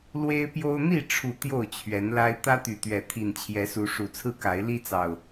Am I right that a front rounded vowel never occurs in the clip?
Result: no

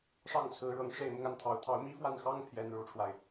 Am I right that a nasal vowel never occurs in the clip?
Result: yes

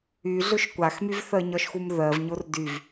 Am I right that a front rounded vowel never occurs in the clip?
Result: no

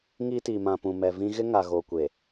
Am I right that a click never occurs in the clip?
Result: yes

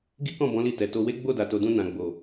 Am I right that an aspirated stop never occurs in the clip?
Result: yes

